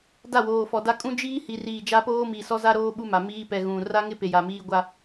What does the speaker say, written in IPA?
d a˦˨ w oː˨ f ɔ˨ d a˦ kʼ ũ˦ d͡ʒ iː˦ h i˨ r iː˨ d͡ʒ a˦ p oː˦ m i˨ s ɔ˦ z a˦ ɾ oː˦ ɓ u˦ m a˨ m iː˦ p ɛ˨ ɣ ũ˨ r a˦ ŋ ɪ˦ p e˨ j a˨ m iː˦ ɡʷ a˦

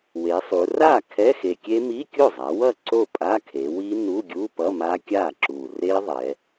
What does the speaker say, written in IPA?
w e˩˧ sˤ u˩˧ r a˥˩ kʰ ɛ˧˥˧ x e˨˩ kʲ e˦˥ m i˧˥˧ kʲ o˥˩ zˤ a˩˧ w ʌ˥˩ ǀ o˥˩ pʼ a˧˥˧ kʰ e˩˧ w i˦˥ n u˧˥˧ ɡʲ u˧˥˧ p ʌ˧˥˧ m a˦˥ kʲ a˥˩ ǁ u˨˩ r e˦˥ ðˤ ɛ˩˧

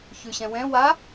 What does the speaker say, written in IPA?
ç ʉ ɕ ɛ̃ w ɛ̃ w a

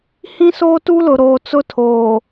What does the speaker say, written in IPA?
h ĩ˦ s oː˦ t u˦ l ʊ˨ ɾ oː˨ t͡s ʊ˦ tʰ oː˨

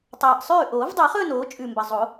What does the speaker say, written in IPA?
tˤ aː˨˩ ʔ sˤ ʉː˥˩ ʔ oː˨˩˦ v dˤ e˨˩˦ χ ɵː˥˧ n oː˩˥ t͡ʃʼ ʉ˨˩ m b ɐ˨˩ zˤ o˨˩˦

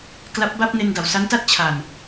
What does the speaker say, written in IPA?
k l a˦˥ p̚ b a˥˩ p̚ n e˧ n d a˨˩ w s a˦˥ n t a˥˩ t̚ t͡ɕʰ a˨˩ n

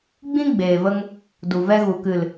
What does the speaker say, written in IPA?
ɡ͡b ĩ˦ ɡ͡b eː˨ v ə˧ ŋ | d u˨ v ɛ˧ ɣ u˨ k ɨ˨ l

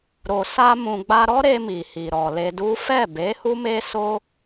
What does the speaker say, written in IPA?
ɾ o˨ s a˧ m ũ˨ ɡ͡b a˧ ɾ ɔ˦ ɾ e˧ m i˨ h i˨ ɾ ɔ˨ l e˧ d u˦ f ɛ˦˨ b e˨˦ h u˦ m e˦ s o˦

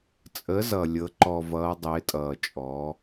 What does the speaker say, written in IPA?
t͡sʼ ə˩˧ z ʌ˩ lʲ ɤ˩˧ ǃ ɔ˩ v ʌː˩˧ dˤ ɪː˩˧ tʼ ʌː˩ t͡ʃʼ ɔ˩˧

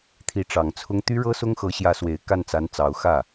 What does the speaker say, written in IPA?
t̪ʰ i˧˥ ʈ͡ʂ ɑ˨˩ ŋ t͡sʰ ʊ˥ ŋ t̪ y˥ ɻ ɤ˥ s ʊ˥ ŋ x ɤ˧˥ ɕ j ä˧˥ s w e˨˩ ɪ̯ k a˥˩ n t͡s a˧˥ n t͡s ɑ˧˥ ʊ̯ x ä˥˩

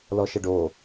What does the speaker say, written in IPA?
l ɔ ʃ ə ɖ o

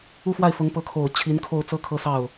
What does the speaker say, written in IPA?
u˥˧ f w a˥˩ ɪ̯ f ʊ˧˥ ŋ p ɤ˧˥ kʰ o˨˩ ʊ̯ t͡ɕʰ i˧˥ n kʰ o˥˧ ʊ̯ t͡s ɤ˥˧ kʰ ɤ˥˧ s ɑ˥˩ ʊ̯

